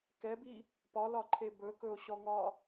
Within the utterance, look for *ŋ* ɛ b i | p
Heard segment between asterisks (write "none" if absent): k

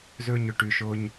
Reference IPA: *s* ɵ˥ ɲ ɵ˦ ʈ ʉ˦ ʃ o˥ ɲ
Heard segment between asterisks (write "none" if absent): z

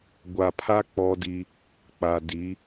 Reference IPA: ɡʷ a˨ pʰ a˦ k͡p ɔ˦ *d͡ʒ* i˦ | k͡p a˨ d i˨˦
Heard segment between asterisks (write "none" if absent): d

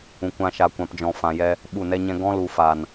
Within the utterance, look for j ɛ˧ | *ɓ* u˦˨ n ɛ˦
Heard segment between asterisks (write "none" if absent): ɓ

